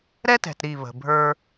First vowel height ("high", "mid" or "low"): mid